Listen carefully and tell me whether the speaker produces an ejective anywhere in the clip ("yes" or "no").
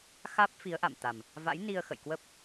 no